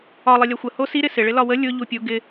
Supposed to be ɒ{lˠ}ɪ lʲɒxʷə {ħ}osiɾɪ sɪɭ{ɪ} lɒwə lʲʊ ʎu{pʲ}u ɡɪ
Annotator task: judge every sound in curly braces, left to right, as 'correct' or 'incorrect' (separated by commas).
correct, incorrect, correct, correct